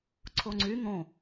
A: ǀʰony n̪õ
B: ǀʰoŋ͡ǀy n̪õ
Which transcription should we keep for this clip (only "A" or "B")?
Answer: B